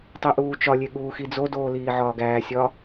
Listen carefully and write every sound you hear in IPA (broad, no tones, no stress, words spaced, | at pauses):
tˤiʔuːt͡ʃɒlʲe ɠuːxid͡zodoː liːʕɒːɡæːsʲɒ